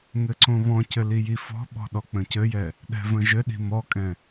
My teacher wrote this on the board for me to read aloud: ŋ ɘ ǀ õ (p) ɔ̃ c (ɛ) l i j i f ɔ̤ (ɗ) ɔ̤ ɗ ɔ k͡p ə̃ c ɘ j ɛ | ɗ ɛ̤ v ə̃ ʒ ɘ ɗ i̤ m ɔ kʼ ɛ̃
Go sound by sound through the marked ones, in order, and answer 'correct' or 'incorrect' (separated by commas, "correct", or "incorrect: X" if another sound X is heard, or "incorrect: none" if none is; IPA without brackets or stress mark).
incorrect: β, incorrect: ɘ, incorrect: ɓ